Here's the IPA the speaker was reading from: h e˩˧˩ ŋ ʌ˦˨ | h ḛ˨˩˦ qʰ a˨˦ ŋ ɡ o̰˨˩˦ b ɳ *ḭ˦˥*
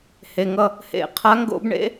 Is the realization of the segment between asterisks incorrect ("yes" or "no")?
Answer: yes